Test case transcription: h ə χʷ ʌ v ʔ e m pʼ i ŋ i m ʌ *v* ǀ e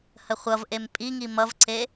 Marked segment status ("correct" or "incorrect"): correct